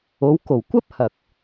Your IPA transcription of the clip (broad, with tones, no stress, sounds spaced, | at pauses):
o˨˧ w k o˨˩ w kʷ ɐ˥ p̚ h ɐ˨ k̚